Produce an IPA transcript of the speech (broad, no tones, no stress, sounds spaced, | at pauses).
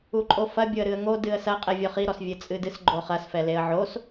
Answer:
u ǃʼ o f ɐ bʲ o ə̯ ɾ ɨ ə̯ ŋ o d ɨ ə̯ s ɐ qʼ ɛ vʲ ɔ χ i ɾ ɔ s vʲ ɘ t͡sʼ ɨ d ɨ s ɡ͡ǃ o χ ɐ s f ɛ l e ə̯ ʕ o s